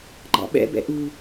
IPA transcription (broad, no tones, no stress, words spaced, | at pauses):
ɡ͡ǃɑ̰ɓɛ̰bɛ̰ ʔu